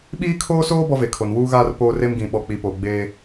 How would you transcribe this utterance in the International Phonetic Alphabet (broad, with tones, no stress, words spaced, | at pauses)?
ɓiː˦kʰoː˦soː˦ bɔ˦ve˨kʰo˨n wuː˦ɣaː˦r poː˦re˦mɡĩ˨ ɓɔ˨ k͡pi˨poː˨ ɡ͡beː˦